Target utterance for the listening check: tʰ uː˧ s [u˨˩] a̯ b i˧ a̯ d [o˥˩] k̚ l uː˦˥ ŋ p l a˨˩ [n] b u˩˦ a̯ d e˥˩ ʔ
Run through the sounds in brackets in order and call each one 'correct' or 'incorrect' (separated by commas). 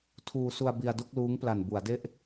incorrect, correct, correct